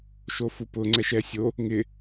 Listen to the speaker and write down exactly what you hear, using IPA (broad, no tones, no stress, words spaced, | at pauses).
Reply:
ʃofupʊ ŋ͡ǀɛʃɛsʲo | ŋɪ